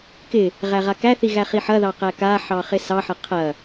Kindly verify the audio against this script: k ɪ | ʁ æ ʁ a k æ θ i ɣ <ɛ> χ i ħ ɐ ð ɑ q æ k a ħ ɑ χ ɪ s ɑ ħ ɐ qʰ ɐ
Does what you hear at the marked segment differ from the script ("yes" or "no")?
yes